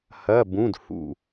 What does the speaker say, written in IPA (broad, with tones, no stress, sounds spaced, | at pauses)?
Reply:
h ɐ˧˥˧ b ũ˧˥˧ d h ṵ˧˩